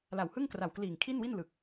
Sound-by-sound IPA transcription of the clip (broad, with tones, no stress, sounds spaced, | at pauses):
l a˨˩ w h ɯ˥˩ ŋ k r a˨˩ w k l iː˨˩ ŋ kʰ i˥˩ n w i˥˩ n l ɯ˨˩ k̚